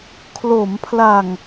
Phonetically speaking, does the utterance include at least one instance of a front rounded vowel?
no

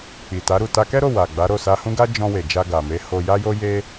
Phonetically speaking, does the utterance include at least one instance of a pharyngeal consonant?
no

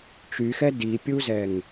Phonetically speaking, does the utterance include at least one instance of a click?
no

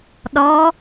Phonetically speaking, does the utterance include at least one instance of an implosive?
yes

